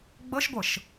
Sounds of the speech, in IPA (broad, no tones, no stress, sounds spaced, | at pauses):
ɡ͡b ɤ ʃ ɡʷ ɤ ʃ